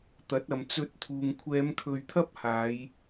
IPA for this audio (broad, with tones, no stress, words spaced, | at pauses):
t̪ɐ˨˥t̚ɐ˨mt͡sɵ˧t̚t̪ʰuː˨ŋ kʷʰɛː˨˧mkʰɵ˨ɥt̪ʰɐ˥p̚haː˨˧j